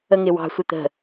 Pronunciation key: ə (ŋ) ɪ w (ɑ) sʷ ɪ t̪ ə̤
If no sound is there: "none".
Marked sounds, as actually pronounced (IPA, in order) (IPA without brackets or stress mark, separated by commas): ŋ, ɑ̤